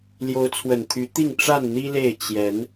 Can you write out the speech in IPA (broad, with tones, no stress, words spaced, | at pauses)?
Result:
ljo˨˦ʊ̯t͡sʰwə˨˩nt̪ʰy˨˦t̪i˥˨ŋ ʈ͡ʂa˥˨n n̪i˦le˥˨ɪ̯ t͡ɕjɛ˨˦n